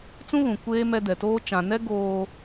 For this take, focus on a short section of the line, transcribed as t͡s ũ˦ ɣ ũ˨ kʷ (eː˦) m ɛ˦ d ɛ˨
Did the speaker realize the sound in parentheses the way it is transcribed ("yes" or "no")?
yes